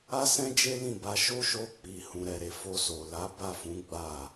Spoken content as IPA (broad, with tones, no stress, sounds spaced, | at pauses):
a˦ s ɛ̃˦ d͡ʒ e˦ l ĩ˦˨ b a˨˦ ʃ o˦ ʃ o˧ k͡p i˨ h ũ˨ ɾ ɛ˨ ɾ e˨ f o˧ s o˨ l a˨˦ b a˦˨ f ũ˨˦ ɡ͡b a˦˨